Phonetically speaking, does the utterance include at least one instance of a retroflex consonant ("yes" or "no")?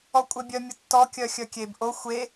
no